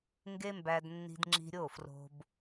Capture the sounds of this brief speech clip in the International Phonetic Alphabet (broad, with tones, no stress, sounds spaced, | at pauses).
ŋ ɡ e˦ m b æ˧ d nː i̤˧ d ŋ͡ǁ i̤˧ ɾʲ o˦˨ f r o̤˧ b